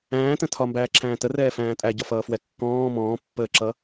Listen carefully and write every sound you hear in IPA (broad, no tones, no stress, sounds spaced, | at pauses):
æ̃ː t ə̃ tʰ ɒ m b æː ǁʰ æ̃ː t ə r ɛː f æ̃ː tʼ æ ɟ ɒ f ʌː f w ɛ kː ɔ̃ː m ɔ̃ː pː əː ǁ ʌ